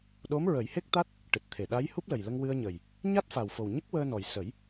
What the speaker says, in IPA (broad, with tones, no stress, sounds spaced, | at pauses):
ɗ o˧˥ m ɹ ə˨˩˦ j h e˦˥ k̚ t̪ a˦˥ t̚ | ʈ ɨ˨˩ t̚ t̪ʰ e˨˩˨ ɗ a˧˥ j h u˦˥ p̚ l ə˨˩ j l ə˧ ŋ w ɨ˧ ə̯ ɲ ə˨˩ j | ɲ a˦˥ t̚ f a˨˩ w f o˨˩ w ɲ ə˦˥ k̚ w əː˧ n ɔ˨˩ j s ə˨˩˦ j